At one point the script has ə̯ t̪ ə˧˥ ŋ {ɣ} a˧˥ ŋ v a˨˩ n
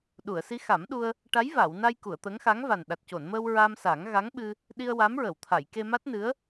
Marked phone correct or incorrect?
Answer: incorrect